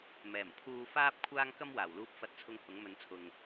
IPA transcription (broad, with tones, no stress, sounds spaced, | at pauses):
m ɛː˨˩ m pʰ uː˧ f aː˥ p̚ kʷʰ aː˥ ŋ k ɐ˥ m w aː˨˩ w l uː˧ p̚ f ɐ˨ t̚ t͡sʰ ʊ˨˧ ŋ h ʊ˨˥ ŋ m ɵ˨˧ n t͡sʰ ʊ˨ ŋ